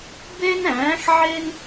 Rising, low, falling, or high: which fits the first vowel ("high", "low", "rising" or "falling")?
high